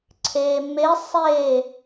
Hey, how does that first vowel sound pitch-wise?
low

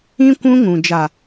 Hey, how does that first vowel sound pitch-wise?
high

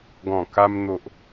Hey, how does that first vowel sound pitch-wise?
low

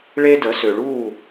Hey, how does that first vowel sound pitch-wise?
high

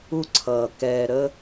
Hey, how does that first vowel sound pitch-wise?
high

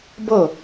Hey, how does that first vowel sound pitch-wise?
falling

